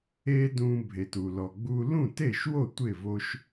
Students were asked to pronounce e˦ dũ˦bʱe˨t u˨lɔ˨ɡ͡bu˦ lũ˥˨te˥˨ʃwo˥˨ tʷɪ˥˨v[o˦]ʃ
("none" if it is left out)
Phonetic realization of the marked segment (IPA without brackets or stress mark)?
o˦